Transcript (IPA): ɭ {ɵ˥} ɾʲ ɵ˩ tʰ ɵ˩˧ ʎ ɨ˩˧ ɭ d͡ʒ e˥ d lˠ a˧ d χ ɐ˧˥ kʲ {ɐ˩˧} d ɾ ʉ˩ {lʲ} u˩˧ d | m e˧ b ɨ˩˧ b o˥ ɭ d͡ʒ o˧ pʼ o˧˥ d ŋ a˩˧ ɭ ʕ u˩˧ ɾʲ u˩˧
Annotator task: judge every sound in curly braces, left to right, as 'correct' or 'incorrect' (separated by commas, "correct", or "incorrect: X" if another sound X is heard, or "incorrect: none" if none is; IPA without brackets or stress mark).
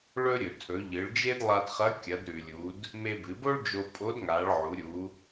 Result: correct, correct, correct